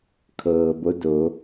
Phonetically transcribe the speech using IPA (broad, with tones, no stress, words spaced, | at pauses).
kʰɤː˩bo˧˥do˩˧